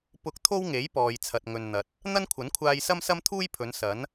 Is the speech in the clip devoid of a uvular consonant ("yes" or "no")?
yes